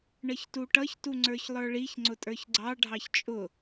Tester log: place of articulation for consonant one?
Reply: retroflex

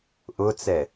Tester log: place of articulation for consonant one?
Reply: glottal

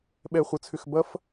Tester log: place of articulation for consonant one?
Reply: labial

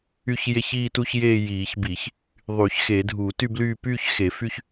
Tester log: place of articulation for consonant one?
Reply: palatal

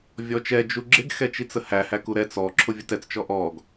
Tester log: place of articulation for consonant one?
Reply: labial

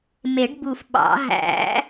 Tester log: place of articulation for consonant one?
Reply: labial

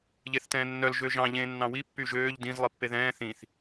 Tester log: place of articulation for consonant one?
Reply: palatal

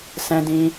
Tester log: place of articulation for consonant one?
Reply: alveolar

